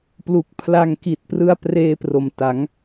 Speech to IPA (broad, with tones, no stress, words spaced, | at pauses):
plu˨˩k̚pʰla˧ŋki˨˩t̚prɯ˦˥a̯ preː˧pro˩˦mta˩˦ŋ